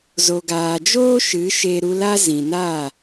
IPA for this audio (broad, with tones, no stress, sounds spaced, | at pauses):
z o˨ ɡ aː˨ d͡ʒ oː˦ ʃ ɨ˨˦ ʃ e˧ ɾ u˧ l a˦ z ĩ˨ n a˦˨